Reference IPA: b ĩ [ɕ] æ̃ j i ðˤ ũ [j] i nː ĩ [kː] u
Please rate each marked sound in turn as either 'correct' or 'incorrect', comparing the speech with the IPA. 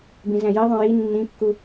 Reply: incorrect, correct, correct

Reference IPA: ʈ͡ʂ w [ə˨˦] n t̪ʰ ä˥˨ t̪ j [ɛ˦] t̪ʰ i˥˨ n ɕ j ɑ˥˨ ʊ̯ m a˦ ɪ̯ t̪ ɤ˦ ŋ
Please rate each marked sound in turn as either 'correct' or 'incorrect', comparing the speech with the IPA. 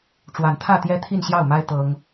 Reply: incorrect, correct

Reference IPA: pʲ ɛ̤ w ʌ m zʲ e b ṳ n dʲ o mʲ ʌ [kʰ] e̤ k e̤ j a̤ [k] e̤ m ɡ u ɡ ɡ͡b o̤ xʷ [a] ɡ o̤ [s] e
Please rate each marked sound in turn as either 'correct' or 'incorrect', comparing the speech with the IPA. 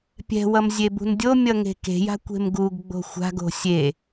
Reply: incorrect, incorrect, incorrect, incorrect

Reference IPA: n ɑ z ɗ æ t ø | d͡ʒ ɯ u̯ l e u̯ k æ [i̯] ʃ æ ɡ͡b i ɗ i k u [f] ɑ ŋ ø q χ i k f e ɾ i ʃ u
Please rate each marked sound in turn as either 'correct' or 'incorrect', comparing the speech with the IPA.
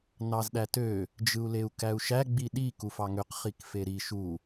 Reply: incorrect, correct

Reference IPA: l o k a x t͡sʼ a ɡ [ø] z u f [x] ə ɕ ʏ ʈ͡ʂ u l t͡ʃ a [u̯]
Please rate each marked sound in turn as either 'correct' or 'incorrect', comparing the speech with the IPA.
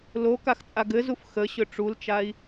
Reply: incorrect, correct, incorrect

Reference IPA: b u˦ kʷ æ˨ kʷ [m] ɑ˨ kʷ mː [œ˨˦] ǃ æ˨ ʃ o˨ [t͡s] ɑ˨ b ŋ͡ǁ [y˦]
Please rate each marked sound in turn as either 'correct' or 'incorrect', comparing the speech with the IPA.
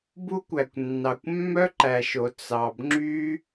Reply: incorrect, incorrect, correct, correct

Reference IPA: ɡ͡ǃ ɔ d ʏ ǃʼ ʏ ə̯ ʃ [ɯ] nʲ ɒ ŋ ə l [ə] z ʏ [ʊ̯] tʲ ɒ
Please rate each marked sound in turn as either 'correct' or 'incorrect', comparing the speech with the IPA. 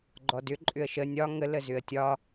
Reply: incorrect, correct, incorrect

